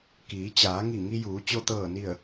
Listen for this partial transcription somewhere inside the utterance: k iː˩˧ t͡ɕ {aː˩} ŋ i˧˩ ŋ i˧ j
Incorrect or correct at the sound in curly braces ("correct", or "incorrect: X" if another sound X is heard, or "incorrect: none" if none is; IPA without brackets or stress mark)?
incorrect: aː˩˧